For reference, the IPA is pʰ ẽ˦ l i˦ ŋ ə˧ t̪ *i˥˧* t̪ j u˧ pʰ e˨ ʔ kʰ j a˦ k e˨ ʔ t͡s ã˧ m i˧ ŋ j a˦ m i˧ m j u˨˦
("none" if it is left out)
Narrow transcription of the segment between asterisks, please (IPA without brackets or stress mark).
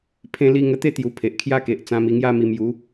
e˥˧